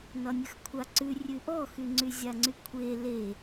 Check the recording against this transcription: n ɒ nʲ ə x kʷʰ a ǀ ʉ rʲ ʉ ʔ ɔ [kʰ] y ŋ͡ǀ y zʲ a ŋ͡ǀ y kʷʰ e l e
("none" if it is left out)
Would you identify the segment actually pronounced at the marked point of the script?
x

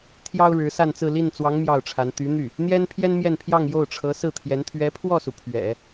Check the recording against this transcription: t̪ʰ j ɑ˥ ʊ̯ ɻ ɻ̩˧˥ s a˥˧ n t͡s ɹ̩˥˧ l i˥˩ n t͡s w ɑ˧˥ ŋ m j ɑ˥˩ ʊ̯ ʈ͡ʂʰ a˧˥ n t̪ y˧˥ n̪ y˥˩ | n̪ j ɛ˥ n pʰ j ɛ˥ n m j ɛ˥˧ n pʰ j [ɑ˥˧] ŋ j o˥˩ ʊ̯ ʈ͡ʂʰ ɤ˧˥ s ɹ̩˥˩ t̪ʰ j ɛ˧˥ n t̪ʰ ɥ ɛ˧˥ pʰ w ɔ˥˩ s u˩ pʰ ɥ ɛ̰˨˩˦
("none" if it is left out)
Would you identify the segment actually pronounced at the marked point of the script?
ɑ˥˧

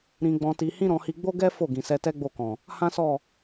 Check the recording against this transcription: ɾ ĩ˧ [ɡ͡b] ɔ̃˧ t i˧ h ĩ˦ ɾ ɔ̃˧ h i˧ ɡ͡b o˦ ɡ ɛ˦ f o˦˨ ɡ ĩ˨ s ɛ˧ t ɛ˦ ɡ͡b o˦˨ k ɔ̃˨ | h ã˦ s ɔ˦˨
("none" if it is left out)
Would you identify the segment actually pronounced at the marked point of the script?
ɡ͡b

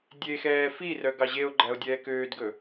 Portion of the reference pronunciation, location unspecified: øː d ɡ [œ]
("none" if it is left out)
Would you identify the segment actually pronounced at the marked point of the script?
ɵ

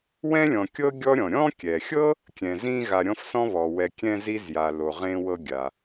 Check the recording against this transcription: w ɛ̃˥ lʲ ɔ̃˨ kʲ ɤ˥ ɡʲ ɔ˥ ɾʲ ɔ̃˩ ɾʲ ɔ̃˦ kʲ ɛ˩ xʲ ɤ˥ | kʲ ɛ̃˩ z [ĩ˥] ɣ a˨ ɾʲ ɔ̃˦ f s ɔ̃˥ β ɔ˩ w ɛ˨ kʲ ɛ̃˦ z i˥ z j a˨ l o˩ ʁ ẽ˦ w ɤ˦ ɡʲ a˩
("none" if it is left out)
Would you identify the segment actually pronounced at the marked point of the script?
ĩ˦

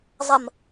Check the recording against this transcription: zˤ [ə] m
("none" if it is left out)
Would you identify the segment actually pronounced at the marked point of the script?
ə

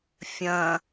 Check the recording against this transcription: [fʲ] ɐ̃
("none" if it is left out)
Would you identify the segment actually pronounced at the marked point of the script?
fʲ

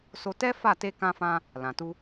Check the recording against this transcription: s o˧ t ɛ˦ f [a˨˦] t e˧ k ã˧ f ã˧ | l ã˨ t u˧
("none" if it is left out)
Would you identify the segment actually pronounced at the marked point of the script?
a˦˨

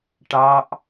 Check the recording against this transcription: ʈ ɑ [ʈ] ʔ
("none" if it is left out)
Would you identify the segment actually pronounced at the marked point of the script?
none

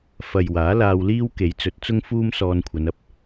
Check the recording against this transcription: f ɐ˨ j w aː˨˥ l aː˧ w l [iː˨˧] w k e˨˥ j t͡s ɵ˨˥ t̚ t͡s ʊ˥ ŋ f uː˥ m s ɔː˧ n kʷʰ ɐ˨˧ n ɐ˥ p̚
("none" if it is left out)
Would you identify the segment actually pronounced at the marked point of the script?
iː˥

